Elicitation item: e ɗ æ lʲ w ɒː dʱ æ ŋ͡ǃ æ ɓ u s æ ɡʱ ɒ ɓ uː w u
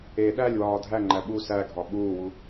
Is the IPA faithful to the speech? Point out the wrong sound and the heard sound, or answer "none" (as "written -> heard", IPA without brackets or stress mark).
none